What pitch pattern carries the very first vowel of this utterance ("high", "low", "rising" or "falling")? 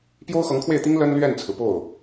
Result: high